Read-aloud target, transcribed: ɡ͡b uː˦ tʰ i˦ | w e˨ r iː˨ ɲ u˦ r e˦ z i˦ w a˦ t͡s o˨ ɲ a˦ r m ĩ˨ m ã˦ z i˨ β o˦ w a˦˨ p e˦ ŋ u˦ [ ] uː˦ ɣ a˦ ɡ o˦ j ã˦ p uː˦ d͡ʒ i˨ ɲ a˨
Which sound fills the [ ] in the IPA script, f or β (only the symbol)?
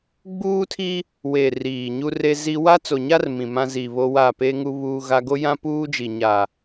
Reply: β